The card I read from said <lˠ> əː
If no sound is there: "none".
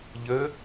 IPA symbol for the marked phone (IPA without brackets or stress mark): ʎ